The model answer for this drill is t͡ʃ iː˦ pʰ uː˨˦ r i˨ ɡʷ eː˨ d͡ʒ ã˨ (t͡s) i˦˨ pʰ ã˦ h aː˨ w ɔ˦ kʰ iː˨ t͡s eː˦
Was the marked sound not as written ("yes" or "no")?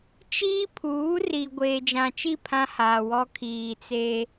yes